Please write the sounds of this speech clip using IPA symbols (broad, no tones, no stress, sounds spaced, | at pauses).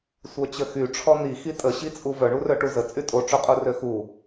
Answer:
sʷ œ t͡ɕ ə x y ʈ͡ʂʰ ɔ n̪ i x i tʼ ə ɕ i t͡sʼ u v œ ɳ u r œ ʈ u z ə t͡sʼ y tʼ o ʈ͡ʂ o qʼ u r ø x u